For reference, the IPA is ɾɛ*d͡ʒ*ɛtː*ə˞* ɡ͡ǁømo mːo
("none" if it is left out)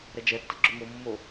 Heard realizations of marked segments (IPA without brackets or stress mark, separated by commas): d͡ʒ, ə